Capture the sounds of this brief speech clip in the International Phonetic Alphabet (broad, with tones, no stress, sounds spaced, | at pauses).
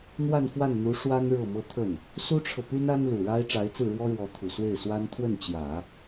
n̪ w a˥˧ n f w a˥˩ n n̪ u˧˥ ʂ w a˥ n ɻ ɤ˥˩ m ɤ˥ t̪ʰ ə˥˩ n | s u˥ ʈ͡ʂʰ ɤ˨ p y˥ n a˥ n l u˨˩ ɻ a˥ ɪ̯ ʈ͡ʂ a˧˥ ɪ̯ t͡s ɹ̩˥˩ ɻ w ɔ˥ ɻ w ɔ˧˥ t̪ʰ u˨˩ s w e˥˩ ɪ̯ s w a˥ n t̪ʰ w ə˥˩ n t͡ɕ j ä˨˩˦